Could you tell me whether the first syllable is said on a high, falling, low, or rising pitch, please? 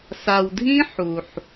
low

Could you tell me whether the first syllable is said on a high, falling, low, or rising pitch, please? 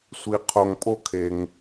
low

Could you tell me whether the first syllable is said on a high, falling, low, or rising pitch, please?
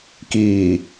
low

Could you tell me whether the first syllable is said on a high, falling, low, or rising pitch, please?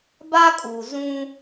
high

